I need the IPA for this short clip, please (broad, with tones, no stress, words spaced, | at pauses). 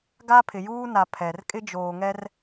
ɡa˦pʰɪ˨juː˦na˨ pʰɛ˨r kʼɪ˦d͡ʒoː˨ŋɛ˦r